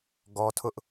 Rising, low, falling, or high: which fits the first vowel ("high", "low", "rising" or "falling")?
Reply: high